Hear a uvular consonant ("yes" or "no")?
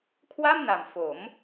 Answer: no